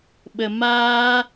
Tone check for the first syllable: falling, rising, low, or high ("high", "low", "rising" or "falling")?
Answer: low